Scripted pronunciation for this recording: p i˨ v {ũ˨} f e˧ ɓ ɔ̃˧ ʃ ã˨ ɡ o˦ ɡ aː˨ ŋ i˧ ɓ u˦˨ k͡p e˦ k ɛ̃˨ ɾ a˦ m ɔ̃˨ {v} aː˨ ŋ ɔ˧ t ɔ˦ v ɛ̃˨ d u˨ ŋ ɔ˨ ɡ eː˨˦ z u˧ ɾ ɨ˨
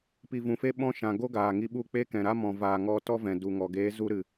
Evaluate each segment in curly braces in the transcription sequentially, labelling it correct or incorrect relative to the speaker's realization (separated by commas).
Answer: correct, correct